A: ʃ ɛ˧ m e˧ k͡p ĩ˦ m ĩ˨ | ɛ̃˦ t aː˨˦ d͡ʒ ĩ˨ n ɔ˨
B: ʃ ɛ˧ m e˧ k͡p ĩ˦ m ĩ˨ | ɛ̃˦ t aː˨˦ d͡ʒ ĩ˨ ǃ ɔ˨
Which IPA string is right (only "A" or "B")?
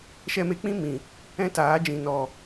A